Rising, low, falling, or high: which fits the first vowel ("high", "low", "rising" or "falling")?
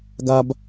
high